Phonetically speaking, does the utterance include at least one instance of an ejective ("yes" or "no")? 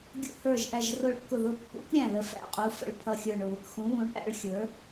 yes